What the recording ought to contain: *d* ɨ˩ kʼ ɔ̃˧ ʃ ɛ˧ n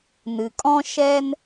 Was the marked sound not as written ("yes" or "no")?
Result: yes